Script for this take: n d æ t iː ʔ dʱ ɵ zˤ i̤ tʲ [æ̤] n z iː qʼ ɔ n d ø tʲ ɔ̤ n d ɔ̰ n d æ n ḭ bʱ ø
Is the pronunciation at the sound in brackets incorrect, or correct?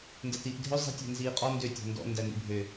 correct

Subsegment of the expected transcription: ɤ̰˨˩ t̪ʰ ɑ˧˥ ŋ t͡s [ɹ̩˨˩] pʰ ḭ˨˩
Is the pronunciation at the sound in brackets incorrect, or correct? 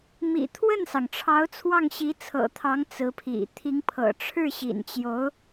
incorrect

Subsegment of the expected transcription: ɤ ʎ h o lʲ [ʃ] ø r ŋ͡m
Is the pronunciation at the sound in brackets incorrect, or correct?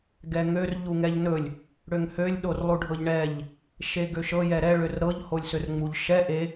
incorrect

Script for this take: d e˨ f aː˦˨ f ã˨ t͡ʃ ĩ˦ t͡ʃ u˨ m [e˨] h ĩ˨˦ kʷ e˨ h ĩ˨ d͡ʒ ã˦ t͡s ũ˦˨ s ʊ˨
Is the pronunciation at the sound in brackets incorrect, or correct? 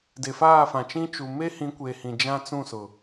incorrect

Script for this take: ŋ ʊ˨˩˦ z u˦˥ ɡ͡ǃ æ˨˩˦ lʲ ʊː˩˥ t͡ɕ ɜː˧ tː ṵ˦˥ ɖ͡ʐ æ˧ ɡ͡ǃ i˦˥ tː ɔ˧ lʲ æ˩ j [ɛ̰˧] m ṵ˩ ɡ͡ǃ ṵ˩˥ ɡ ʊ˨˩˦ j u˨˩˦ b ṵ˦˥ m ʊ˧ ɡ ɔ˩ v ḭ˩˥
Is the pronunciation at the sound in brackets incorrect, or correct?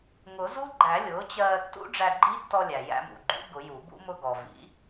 incorrect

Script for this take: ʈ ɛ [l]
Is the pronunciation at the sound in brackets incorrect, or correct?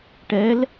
correct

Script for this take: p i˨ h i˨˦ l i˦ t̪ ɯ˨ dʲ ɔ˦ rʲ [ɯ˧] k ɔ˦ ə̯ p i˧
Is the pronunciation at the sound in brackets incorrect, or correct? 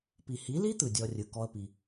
correct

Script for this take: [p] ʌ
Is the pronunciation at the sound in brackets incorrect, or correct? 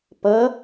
correct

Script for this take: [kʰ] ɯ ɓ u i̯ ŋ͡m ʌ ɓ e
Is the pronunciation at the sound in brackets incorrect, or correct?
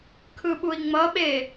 correct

